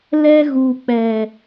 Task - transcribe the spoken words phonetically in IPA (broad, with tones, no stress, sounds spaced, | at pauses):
l ɛ˧ ɣ u˨ k͡p ɛ˨